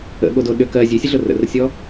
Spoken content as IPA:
ə̰ ɠ o d o ɗ ʏ k ɜ zʲ ʉ sʲ ə ɮ ʊ r ə̰ r sʲ ɔ

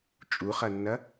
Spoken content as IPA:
t͡ʃʼ u χ ɐ nː ɐ

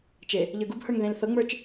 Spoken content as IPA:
t͡ʃ e | ʎ ə˞ ɡ u b h ə˞ ŋ ð ẽ l θ ɤ ŋ͡m ə˞ t͡ʃ

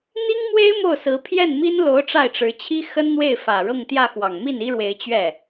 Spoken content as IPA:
n̪ i˥ ŋ m w e˥ ɪ̯ m o˥˩ ʊ̯ s ɹ̩˧˥ pʰ j ɛ˥˩ n m i˥ n l o˧˥ ʊ̯ ʈ͡ʂ a˥˩ ɪ̯ ʈ͡ʂ ɻ̩˧˥ t͡ɕʰ i˥ x ə˥ n n̪ w e˥˩ ɪ̯ f ä˨˩ ɻ ɤ˥˧ ŋ t̪ j ä˥˩ x w ɑ˨˩ ŋ m i˥˩ n i˥ ɻ w e˧˥ ɪ̯ t͡ɕ ɥ ɛ˥˩

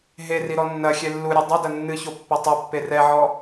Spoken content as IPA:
ɦ e r i ɾ ɔ nː ɐ xʲ ɛ lː u ɾʲ ɔ dˤ ɐ d ɐ nː ɨ ç o pː ɘ tˤ u pː e r ɛ ʕ ɔ

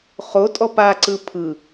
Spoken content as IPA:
χ o tʼ ɔ p a ǀ ɯ pʰ ɯ

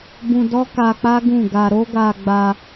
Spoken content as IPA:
b ũ˧ d ɔ˦ k a˧ k͡p a˦ ɡ ũ˦˨ ɡ a˧ ɾ o˦ ɡ a˧ ɡ͡b a˧

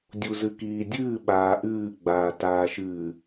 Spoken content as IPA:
dʲ u z ɨ k iː dʲ ɨː ɓ aː ʔ ɨː ɡ͡b aː t aː ʃ ɨː

